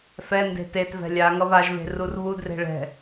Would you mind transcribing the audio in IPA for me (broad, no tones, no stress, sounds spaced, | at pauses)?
f ɛ n d e̤ t e t v ɛ̤ lʲ a ŋ ʌ β a ʒ β e̤ r u r β u d r e̤ ɭ ɛ̤